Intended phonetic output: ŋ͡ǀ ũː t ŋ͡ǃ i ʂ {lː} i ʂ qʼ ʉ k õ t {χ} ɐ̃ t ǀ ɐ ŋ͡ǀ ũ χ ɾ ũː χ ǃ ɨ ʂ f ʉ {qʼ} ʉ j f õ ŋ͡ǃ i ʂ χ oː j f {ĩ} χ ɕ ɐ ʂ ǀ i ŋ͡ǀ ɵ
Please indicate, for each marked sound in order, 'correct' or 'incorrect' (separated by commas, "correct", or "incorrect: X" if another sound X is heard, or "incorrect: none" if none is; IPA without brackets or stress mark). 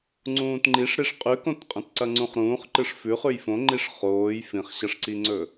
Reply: incorrect: ɾ, incorrect: qʼ, incorrect: χ, correct